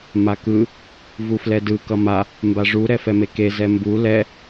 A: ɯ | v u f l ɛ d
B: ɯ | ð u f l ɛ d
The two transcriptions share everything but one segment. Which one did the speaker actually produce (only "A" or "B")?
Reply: A